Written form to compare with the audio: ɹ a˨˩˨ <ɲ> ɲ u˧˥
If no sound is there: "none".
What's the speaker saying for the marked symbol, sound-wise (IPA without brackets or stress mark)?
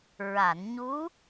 n